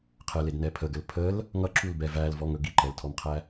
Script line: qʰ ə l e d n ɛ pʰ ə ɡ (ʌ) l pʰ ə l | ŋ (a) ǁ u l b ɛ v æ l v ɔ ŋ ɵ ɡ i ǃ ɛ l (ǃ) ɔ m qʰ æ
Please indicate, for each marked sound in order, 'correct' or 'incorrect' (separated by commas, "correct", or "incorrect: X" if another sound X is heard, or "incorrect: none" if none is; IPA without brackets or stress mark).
incorrect: ə, incorrect: ʌ, incorrect: tʰ